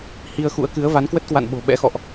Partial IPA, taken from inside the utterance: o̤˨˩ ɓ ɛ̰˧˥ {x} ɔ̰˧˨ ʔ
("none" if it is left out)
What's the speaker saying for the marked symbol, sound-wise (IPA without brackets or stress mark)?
x